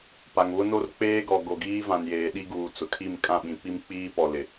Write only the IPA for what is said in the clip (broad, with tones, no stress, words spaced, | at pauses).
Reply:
pa˨ŋβʊ˦no˦r k͡peː˦ɡɔ˨ ɡo˨ɡiː˦vã˨n jeː˨ɗi˦ɡuː˨ t͡sʊ˨kʰi˦˨m kʼã˦˨ɓĩ˨pi˦mk͡piː˦ pɔ˨ lɪ˨